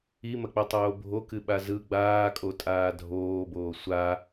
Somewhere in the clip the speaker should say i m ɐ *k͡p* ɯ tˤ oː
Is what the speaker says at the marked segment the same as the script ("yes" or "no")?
yes